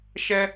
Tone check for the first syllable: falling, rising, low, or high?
high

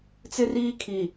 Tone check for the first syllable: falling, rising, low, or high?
high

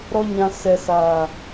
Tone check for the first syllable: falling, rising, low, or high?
low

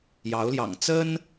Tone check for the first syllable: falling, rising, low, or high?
rising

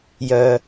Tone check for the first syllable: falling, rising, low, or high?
low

